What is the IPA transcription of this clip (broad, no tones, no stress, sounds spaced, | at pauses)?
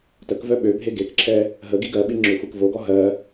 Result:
t ə k v œ ɓ ø bʱ e ɡ e k ǁʰ ɛ | ɦ ə ɡ i ɡ ɜ ɓ i ŋ͡ǁ ø xʷ e k v o ɡ ɔ ɦ ɜ